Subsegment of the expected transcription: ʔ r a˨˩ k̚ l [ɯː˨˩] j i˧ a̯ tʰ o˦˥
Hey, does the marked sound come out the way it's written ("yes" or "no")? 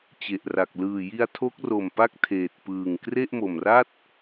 yes